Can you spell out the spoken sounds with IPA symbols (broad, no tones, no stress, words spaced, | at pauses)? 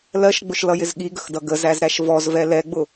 lɜʃɡ͡bʊʃlʌjɪz ɠiɡəxdʌ ɡəzæzɾæʃ vɔzvɛ lɛɡ͡bʊ